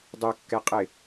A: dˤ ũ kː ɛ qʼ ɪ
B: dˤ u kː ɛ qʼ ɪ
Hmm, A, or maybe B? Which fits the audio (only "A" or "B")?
B